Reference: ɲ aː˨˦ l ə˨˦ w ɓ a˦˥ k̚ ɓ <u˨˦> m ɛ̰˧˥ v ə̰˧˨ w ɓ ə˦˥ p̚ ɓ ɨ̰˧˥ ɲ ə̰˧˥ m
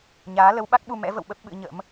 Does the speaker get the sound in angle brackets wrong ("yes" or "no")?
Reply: yes